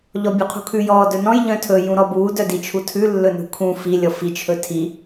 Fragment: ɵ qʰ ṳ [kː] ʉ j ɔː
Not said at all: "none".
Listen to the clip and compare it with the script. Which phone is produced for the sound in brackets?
kʰ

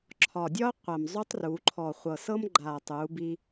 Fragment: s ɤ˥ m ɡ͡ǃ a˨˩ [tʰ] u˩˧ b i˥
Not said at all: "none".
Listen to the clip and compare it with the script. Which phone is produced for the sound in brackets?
tˤ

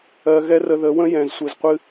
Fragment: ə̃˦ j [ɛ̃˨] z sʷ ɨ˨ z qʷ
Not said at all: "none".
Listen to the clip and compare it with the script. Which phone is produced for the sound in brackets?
ɛ̃˨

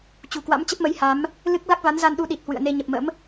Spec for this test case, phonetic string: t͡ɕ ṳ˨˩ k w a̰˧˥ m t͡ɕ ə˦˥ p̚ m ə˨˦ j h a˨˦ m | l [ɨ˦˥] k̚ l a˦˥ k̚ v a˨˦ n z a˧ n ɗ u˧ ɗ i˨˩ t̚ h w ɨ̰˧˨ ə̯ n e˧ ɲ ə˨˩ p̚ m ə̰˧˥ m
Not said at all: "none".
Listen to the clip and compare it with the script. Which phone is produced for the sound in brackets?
ɨ˦˥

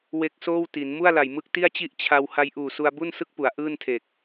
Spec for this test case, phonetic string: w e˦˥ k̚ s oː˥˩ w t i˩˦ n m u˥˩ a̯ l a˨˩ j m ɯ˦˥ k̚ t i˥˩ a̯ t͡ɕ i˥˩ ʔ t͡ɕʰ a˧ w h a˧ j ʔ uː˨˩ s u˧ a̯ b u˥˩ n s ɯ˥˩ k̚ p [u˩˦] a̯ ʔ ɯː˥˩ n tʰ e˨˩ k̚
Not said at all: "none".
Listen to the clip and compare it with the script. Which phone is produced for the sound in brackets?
u˩˦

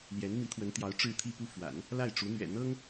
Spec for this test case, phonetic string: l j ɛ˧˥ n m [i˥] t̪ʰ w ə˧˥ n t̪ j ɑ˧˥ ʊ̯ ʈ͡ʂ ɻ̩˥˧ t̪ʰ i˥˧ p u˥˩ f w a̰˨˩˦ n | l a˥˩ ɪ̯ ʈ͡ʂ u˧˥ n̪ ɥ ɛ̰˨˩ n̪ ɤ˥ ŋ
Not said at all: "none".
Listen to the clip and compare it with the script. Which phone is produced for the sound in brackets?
i˧˥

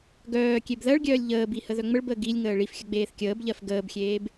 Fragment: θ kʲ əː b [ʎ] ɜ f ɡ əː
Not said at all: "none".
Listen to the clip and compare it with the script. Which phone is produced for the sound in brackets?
ʎ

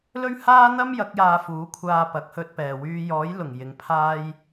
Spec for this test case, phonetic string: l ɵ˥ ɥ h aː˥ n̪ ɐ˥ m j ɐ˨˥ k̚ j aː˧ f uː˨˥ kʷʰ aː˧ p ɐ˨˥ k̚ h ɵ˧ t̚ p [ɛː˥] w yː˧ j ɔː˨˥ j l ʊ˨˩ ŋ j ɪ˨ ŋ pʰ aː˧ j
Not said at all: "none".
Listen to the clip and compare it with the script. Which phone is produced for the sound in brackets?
ɛː˨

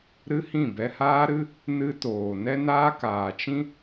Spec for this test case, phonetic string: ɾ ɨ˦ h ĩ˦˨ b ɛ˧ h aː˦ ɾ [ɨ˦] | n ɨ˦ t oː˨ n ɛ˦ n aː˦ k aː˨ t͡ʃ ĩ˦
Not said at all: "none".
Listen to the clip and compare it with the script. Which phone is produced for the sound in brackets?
ɨ˦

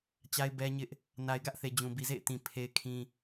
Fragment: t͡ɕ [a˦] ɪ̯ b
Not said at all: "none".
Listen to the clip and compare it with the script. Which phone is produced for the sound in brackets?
a˦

